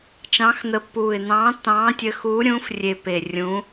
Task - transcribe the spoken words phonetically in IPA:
t͡ʃ ɑ̃˨˦ x n̪ ə˨˦ pː uː˨˩ ɪ̯ n̪ ɑ̃ː˨˦ tː ɑ̃ː˨˦ tʲ ə˨˦ x uː˨˦ ɾʲ ũː˨˦ f rʲ e˨˩ p e˨˩ rʲ ũː˨˦

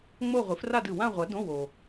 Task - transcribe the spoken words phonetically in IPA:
ŋ͡m o˥˧ ʁʷ ɨ˨˥ f r a˥˧ d ɨ˨ w ã˥˧ ʁʷ ɐ˨˥ d õ˧˥˧ w o˨

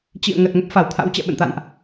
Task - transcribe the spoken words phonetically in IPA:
t͡ɕ ḭ˧˨ ə̯ ŋ ə˨˩ t̚ ŋ ə˦˥ p̚ f a˧˩ w t̪ʰ a̰˧˥ w t͡ɕ ɛ̰˧˨ ɓ ə̰˧˨ n t̪ a̰˧˨ n ʔ

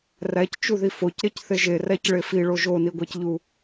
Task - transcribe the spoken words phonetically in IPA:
r æ c t͡ʃ u ð i f o c ɾ e c θ e ʒ e r æ c ɭ e f i ɭ o ʒ o n i ɡʷ æ c ʎ u

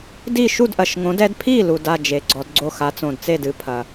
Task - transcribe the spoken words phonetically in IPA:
d i˥˩ ʃ u˥˩ d ʔ ɐ˨˩ ʃ ŋ õ˨˦ d ɛ˨˦ d pʰ i˥˩ l u˨˩ d a˥˩ d͡ʒ e˨˦ ɡ͡ǀ ɔ˨˦ d ɡ͡ǀ o˥˩ x a˨˦ t͡s õ˨˩ d t͡s e˥˩ d ɨ˨˦ pʰ ɐ˨˩

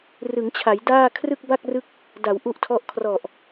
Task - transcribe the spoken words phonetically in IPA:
r ɯ˩˦ ŋ t͡ɕʰ a˩˦ j d aː˥˩ kʰ r ɯ˥˩ k̚ b a˥˩ k̚ r ɯ˦˥ k̚ | d a˩˦ w ʔ u˥˩ ʔ tʰ ɔ˥˩ ʔ kʰ r ɔ˨˩ ʔ

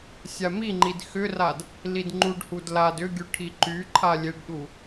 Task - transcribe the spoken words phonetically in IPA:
sʲ a m i ŋ͡ǃ i d x ʏ r a d | l i d ŋ͡ǃ u ɖ h u d l a d ʏ ɡʲ u ʈʰ i ǃ y ǃʰ a lʲ e ɖ ɗ u

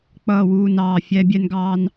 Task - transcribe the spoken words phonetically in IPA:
k͡p ʌː˥˨ w uː˥˨ n ɑː˥˨ fʲ æ˥ bʲ ɛ˥ n ɡ ɑː˥ n

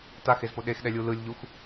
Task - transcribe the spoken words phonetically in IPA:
t a x e z p o ɗ e x ɗ ɛ lʲ u l ɯ lʲ ʎ u x

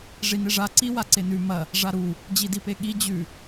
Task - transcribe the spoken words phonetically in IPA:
ʐ i n e ʐ a ǀ i w a ǀ e n ʉ m ɐ | ʐ a ɾ u | d͡ʑ i d i p e ɠ i d͡ʑ ʉ

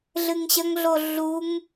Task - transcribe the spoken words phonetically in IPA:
ɮ ɨ ŋ ɕ ɐ ŋ ɮ o ɮ u ŋ

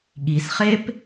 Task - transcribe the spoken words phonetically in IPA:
ɠ i s χ e p

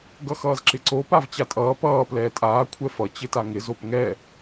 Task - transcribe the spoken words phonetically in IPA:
ɡ ʌ x ʌː z ǁ ɪ ǀ o p a v t͡ɕ a tʼ ʌː p ʌː p l ɛː tʼ aː kʷʰ ɛ f ʌ t͡ɕ ɪ t a ŋ ɪ z o p ŋ ɛ

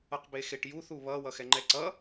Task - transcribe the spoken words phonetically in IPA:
ʌ q b e x e ʈ j u θ u β ʌ w ʌ x ɛ ŋ͡ǃ ɛ ǀ ʌ

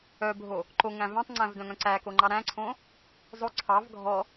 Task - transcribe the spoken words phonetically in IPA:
œ bʱ o | ǃ o ŋ æ̃ v æ̃ tˤ ŋ͡ǀ æ̃ v d œ̃ ŋ œ̃ ǀ æ k o ŋ͡ǃ ɑ ɾ æ̃ ǀʰ õ | zˤ o ǀʰ ɑ v ɡʱ ɔ

